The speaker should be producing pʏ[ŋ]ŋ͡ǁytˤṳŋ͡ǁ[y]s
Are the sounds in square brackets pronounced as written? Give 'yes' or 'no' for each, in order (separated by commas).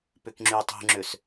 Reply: no, no